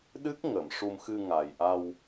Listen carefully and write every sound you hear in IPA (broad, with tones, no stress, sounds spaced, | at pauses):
ɗ ɨ˦˥ k̚ ŋ ə˨˩˨ m ʂ u˧ m x ɨ˧ ŋ a˨˩ j ʔ a˧ w